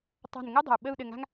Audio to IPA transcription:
tˤa̤˦˨nŋɨ˥dˤə̤˨˩u̯ ɓə˦˨u̯ ɗɘ˦˨ŋa̤˥ŋ

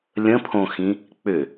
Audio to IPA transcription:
lʲə̃pʰõxĩ | k͡pʏ

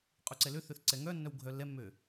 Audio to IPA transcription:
qʼuǀɛløθøθ ǀɛŋœnːœw ɡʱœlːɛmːø

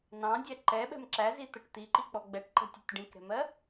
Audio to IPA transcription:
nɑ̃dʲæ ǃɛɓɛ̤m ǁæzit̪əʈ t̪iǃik͡pɔ ɡ͡bɛʈǃə̤tʲʊtʲ ɖĩkɾɛ̤mɜ

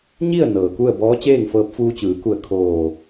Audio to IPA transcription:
ɲi˥˨ə̯ nɤː˩ku˥˨ə̯ bɔː˧˥t͡ɕeː˥˨ŋfɤː˧p̚ fuː˧t͡ɕɯː˩˧ku˧˩ə̯ kʰoː˧˩

